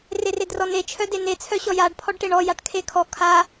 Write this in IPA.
r e r e d r ɔ n e t͡ʃʰ œ d e n e t͡sʰ œ ɕ ɔ j a ɖ pʰ ɔ ɖ ʈ e ɳ ɔ j a ʈ kʰ e kʰ ɔ kʰ a

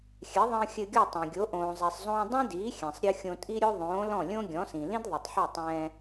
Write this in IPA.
xʲ ɛ˩˥ ðˤ ə̃ː˧ xʲ ɘ˧ ɡʲ ɔ˥˩ tˤ ɛ̃˩ ɡʲ o˩˥ ʔ õː˩ zˤ ɛ˩ sˤ zˤ õː˧ dˤ ĩ˥ d iː˩˥ xʲ ɛ̃˩ sˤ ɾʲ ɯ˧ xʲ õ˧ tʼ i˥ ɾʲ o˥ ðˤ õː˩˥ l ɔ̃˥˩ lʲ õ˥ ɡʲ ɔ̃˩˥ s ĩ˩ l ĩ˥ d ðˤ ɯ˩ tˤ ħ o˥˩ tˤ ɛ̃ː˧

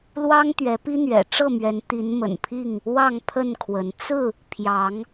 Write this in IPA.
l w ɑ˦ ŋ t̪ ɥ ɛ˨˦ p i˦ n̪ ɥ ɛ̰˨˩ ʈ͡ʂ ɤ˥˨ m ɥ ɛ˨˦ n t̪ i˨˦ n m ə̰˨˩ n pʰ i˥˨ ŋ | w ɑ˥˨ ŋ pʰ ə˥˨ n kʰ w ə˨˦ n t͡s ɹ̩˥˨ | pʰ j ɑ˨˦ ŋ

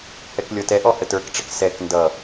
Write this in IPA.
h ɛ k lʲ ɔ t ɛ ʔ ɔ h ə t ə˞ k ʈ͡ʂ ɪ k s ɛ k n d ʌ

